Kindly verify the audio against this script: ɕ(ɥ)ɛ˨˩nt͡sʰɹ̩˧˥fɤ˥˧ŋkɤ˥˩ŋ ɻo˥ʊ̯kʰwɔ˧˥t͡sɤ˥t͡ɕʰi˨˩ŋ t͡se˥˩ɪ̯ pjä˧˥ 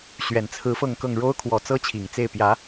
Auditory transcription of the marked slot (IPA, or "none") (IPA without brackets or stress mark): ɥ